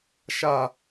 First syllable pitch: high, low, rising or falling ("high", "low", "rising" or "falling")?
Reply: low